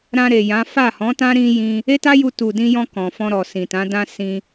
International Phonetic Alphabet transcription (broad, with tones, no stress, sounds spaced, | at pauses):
ɾ ã˧ ɾ e˨ j ã˨˦ f a˦˨ h ɔ̃˨˦ t ã˦ ɾ ĩ˦ j ĩ˧ | e˦ t a˦ j u˧ t u˨ d ĩ˧ j ɔ̃˧ k ɔ̃˨ f ɔ̃˧ ɾ ɔ˨ s ĩ˨ t ã˨˦ d ã˧ s ĩ˧